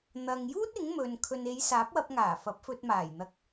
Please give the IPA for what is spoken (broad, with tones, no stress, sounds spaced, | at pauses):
n̪ ɐ˨ ŋ j uː˥ t̚ ɪ˨˥ ŋ m ɵ˨ n kʰ ɵ˨ n e˨˧ j s aː˨˥ p̚ w ɐ˧ p̚ ŋ aː˨˩ f ɐ˨˥ p̚ f ɵ˧ t̚ m aː˨˩ j n̪ ɐ˧ k̚